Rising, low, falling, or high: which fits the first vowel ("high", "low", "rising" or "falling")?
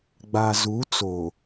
low